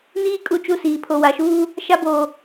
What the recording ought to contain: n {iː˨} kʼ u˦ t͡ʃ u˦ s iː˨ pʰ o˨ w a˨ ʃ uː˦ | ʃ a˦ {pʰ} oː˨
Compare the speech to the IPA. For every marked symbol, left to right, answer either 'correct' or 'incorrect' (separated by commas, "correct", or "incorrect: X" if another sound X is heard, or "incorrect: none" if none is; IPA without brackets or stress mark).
incorrect: iː˦, incorrect: b